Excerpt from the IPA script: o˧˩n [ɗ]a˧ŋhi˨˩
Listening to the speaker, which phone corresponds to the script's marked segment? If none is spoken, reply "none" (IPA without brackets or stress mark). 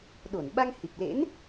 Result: ɓ